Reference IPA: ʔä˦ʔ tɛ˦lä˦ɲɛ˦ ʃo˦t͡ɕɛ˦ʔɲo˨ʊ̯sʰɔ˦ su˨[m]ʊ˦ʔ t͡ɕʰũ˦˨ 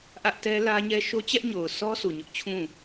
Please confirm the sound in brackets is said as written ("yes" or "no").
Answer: no